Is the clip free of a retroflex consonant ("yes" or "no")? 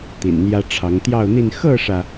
no